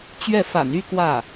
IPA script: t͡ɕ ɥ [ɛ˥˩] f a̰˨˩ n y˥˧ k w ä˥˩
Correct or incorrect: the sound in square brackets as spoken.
correct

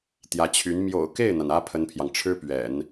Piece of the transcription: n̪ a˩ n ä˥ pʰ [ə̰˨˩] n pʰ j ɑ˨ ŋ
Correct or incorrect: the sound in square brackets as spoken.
incorrect: ə˥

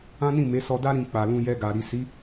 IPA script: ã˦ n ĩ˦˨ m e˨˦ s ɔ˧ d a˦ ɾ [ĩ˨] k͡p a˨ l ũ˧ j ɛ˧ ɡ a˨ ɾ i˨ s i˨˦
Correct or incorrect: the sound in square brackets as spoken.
incorrect: ĩ˧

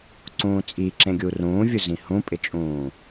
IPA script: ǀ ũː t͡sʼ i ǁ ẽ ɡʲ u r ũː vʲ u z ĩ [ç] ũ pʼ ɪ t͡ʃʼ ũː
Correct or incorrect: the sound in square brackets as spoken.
incorrect: h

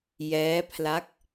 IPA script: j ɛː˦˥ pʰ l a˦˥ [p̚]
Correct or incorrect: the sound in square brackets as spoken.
incorrect: k̚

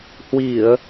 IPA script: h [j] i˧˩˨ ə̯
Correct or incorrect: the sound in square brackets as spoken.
incorrect: w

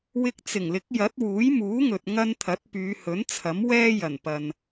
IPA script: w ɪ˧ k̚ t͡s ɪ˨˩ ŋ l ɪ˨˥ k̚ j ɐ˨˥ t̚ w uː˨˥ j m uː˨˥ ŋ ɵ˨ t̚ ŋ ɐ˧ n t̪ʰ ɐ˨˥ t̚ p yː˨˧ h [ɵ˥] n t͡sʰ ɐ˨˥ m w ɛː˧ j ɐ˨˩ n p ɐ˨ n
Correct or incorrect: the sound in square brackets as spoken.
incorrect: ɵ˨˥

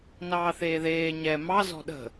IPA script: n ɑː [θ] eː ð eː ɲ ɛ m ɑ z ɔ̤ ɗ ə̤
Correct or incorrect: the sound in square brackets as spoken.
correct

